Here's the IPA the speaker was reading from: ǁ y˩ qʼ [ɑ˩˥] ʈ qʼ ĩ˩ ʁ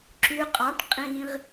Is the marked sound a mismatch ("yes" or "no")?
no